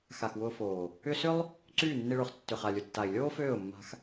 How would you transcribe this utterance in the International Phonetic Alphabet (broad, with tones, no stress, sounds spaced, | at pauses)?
x a˨ x w ʊː˧ f oː˨ | ʏ˦ s ʏ˦ lˠ | ǀ yː˦˨ nː i˧ ɭ ʊː˨ χ tː ʏ˨ χ a˨ lʲ ʊ˨ tː a˨ ɪ̯ lʲ oː˦ f øː˦˨ ʊ̯ mː a̤˧ x